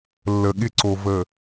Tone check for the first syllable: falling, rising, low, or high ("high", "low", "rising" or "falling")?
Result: low